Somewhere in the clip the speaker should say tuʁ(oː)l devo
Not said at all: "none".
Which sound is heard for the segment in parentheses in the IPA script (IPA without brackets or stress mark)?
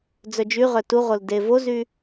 o